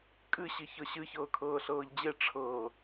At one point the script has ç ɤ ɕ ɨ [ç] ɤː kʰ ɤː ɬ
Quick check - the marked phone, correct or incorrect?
correct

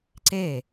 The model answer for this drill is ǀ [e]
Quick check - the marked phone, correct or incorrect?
correct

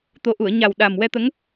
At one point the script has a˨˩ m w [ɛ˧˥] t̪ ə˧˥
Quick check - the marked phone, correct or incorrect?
incorrect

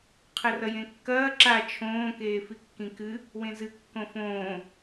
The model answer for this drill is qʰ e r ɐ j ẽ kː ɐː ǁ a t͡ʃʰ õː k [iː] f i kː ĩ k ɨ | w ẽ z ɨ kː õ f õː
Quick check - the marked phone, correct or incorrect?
incorrect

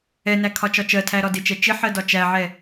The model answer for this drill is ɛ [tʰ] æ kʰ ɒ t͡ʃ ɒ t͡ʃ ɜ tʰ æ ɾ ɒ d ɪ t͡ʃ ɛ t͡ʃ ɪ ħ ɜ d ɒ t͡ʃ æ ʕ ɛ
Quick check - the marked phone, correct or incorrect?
incorrect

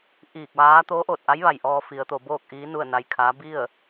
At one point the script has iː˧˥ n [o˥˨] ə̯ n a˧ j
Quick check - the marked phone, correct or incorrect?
incorrect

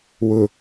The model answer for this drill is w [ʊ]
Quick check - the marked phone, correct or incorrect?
correct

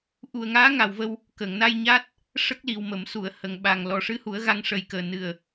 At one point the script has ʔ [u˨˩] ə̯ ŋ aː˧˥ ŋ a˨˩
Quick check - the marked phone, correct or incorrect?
correct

